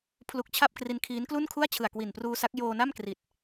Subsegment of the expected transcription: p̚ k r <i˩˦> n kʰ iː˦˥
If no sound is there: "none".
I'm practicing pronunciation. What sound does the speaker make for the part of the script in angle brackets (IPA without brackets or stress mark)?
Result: i˧